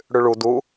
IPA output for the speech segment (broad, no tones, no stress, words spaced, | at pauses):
ɽʉɭu du